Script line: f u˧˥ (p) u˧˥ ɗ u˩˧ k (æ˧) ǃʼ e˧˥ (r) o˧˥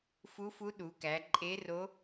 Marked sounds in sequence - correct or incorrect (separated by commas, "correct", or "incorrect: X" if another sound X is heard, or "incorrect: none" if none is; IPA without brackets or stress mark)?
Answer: incorrect: f, incorrect: æ˩˧, correct